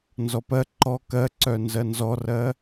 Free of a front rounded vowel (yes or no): no